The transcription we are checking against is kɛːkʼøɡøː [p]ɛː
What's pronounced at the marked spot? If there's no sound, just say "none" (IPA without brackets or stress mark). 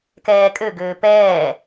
p